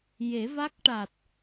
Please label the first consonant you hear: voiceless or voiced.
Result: voiced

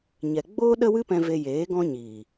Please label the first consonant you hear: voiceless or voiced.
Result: voiced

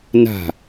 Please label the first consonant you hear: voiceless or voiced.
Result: voiced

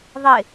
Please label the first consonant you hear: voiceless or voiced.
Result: voiced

